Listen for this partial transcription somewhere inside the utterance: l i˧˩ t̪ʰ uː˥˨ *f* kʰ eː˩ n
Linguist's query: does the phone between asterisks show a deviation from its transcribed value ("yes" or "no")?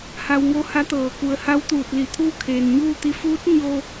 yes